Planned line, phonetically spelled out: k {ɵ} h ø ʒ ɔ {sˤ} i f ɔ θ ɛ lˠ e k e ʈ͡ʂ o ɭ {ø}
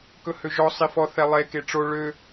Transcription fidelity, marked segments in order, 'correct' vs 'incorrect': correct, correct, correct

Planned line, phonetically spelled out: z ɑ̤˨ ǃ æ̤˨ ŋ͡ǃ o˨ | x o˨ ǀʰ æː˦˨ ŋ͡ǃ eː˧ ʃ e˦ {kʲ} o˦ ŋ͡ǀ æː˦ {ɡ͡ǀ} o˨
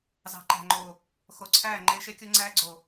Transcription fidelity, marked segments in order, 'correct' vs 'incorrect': correct, correct

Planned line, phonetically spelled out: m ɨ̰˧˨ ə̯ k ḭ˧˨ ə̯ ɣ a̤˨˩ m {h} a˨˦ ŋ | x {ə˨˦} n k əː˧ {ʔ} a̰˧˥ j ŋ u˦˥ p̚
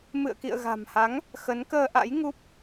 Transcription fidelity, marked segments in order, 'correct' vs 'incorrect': correct, correct, correct

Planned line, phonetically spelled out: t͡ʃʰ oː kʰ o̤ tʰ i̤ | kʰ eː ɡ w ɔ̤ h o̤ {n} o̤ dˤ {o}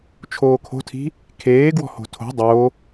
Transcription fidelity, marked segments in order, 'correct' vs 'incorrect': incorrect: tʰ, correct

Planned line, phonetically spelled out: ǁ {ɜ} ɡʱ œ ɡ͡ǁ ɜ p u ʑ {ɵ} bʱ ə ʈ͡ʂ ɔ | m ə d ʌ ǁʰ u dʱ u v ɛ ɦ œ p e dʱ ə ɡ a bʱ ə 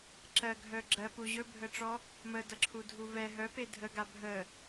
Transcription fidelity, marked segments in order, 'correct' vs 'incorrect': correct, correct

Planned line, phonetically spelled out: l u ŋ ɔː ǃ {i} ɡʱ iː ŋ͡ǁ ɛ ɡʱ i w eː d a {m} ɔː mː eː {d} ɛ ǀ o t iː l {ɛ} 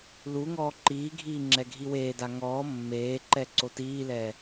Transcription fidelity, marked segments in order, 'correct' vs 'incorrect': incorrect: iː, incorrect: ŋ, incorrect: ǃ, incorrect: ɛː

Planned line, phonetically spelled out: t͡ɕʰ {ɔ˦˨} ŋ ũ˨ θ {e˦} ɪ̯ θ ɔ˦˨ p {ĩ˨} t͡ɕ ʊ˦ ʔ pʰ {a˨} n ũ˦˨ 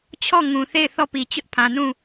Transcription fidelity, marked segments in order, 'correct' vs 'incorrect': correct, incorrect: e˦˨, incorrect: i˨, incorrect: ã˨

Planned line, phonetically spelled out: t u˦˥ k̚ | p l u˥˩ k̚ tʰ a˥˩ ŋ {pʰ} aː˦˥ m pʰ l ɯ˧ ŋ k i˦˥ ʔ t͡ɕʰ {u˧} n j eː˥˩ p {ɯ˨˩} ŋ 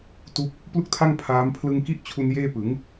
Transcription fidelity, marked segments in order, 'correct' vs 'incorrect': correct, correct, incorrect: ɯ˩˦

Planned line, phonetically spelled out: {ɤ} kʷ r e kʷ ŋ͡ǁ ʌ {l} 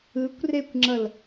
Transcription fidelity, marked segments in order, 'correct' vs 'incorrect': incorrect: ɯ, correct

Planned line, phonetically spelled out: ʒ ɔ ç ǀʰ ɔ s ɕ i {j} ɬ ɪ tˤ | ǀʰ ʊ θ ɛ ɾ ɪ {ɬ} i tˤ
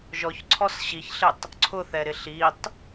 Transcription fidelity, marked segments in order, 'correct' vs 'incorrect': incorrect: ç, correct

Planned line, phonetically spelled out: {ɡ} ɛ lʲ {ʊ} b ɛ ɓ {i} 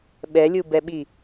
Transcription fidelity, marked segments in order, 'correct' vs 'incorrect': incorrect: ɓ, incorrect: u, correct

